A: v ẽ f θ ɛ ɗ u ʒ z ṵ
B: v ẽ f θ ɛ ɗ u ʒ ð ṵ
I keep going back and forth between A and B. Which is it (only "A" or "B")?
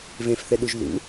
B